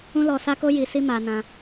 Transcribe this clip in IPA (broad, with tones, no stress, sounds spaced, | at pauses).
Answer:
ũ˦ l ɔ˧ s a˦ k o˦ j i˧ s i˦ m a˧ n ã˧